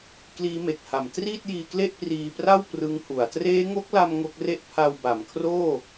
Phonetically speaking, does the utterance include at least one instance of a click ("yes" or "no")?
no